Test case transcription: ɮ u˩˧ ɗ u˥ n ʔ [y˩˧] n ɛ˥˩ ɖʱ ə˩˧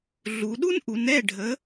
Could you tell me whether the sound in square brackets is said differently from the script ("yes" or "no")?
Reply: yes